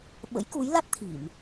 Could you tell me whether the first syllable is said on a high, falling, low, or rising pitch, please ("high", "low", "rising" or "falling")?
rising